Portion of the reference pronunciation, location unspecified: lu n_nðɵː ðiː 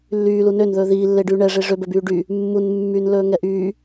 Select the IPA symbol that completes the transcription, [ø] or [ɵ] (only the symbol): ø